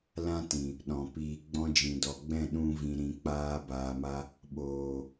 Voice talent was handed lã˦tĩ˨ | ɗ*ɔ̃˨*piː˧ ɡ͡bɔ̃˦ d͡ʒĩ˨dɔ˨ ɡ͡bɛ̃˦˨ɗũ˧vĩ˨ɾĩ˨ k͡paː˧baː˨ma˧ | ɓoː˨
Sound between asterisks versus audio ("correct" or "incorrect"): correct